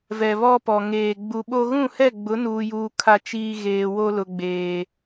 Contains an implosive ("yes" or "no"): yes